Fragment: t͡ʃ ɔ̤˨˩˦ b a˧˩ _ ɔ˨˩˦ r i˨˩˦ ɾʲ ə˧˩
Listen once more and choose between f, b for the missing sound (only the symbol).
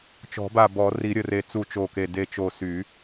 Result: b